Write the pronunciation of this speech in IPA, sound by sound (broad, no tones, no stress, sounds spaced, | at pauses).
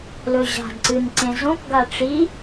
l ɵ ʑ a̤ d ǀ ɨ n ǀ ẽ z õ k ɡ a ʈ͡ʂ i